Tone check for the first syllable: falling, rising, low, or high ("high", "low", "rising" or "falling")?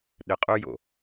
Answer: low